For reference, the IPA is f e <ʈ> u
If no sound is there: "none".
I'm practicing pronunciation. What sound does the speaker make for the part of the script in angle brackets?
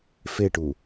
ʈ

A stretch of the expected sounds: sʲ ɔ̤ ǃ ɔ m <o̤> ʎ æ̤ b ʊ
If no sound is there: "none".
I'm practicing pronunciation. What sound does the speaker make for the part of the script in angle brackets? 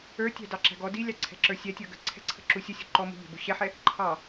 ṳ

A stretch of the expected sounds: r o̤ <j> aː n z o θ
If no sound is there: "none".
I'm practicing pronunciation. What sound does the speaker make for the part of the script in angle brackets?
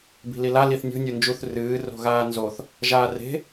ɣ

